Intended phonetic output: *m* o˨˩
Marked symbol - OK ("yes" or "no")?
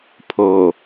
no